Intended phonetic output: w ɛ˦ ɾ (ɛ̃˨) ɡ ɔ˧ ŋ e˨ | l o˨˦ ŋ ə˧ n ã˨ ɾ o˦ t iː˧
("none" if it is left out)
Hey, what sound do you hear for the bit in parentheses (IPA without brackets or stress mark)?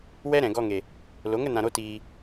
ɛ̃˨